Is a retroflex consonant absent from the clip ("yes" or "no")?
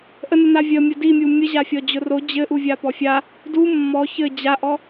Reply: yes